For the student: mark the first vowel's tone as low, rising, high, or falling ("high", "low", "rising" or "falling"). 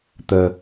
low